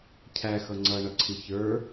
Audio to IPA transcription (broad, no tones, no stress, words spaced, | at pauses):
cʰæxʌ ŋ͡ǀʌɳʌǀʰi çə˞